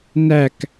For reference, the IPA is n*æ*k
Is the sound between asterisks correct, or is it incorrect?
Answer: correct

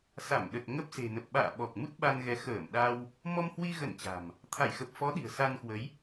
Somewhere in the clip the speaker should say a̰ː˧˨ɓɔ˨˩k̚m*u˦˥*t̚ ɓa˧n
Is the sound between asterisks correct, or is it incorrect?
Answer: correct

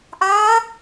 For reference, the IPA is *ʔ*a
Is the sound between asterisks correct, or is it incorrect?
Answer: correct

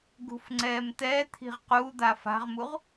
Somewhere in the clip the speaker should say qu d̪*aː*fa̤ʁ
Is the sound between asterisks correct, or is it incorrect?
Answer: incorrect: a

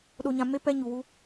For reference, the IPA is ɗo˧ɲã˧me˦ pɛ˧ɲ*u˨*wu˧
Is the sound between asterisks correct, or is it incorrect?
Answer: correct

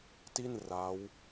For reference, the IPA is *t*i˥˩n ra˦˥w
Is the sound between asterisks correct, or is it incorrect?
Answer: correct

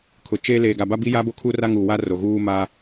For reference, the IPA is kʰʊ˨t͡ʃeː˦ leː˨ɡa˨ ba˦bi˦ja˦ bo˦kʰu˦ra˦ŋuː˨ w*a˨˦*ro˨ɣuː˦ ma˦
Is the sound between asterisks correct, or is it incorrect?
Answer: incorrect: a˦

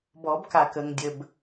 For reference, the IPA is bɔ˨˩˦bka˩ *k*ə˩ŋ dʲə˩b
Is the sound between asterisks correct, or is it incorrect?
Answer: correct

